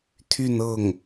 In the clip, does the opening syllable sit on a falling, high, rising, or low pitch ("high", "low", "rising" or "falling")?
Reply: falling